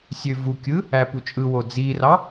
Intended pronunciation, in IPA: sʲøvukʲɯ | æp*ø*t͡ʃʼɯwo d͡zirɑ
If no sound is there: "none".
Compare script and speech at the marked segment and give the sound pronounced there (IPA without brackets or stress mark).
u